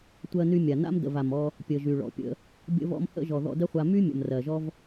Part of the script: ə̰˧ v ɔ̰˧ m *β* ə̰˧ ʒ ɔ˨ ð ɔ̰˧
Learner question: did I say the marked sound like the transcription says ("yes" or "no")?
no